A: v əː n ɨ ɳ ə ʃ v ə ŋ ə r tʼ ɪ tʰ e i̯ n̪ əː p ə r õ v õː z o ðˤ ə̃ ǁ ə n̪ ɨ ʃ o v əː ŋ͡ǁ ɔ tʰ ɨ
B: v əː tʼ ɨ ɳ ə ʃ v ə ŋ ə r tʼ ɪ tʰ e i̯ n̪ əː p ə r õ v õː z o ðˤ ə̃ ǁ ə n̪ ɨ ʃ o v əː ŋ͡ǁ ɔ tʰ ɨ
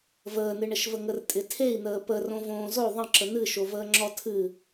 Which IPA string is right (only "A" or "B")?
A